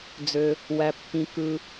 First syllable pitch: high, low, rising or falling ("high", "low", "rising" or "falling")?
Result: low